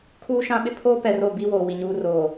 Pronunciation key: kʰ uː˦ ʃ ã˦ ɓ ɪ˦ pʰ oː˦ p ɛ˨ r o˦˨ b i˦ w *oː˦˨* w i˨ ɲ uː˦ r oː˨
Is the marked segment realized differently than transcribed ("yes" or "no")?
yes